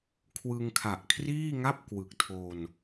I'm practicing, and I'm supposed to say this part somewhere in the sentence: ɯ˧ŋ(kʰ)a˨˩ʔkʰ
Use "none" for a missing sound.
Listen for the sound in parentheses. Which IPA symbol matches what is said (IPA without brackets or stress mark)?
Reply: kʰ